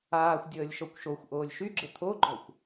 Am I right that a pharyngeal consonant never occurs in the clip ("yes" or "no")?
yes